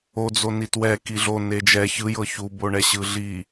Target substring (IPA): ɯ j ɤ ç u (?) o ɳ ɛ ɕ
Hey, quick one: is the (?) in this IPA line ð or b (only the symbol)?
b